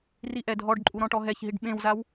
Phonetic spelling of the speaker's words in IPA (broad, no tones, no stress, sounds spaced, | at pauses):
r i ʔ ɛ dʱ ɔ ɖ ǃʼ u ɾ ɔ̃ ʈ ɔ ɦ ɛ ç ɦ i ɖ ɓ ẽ w z a w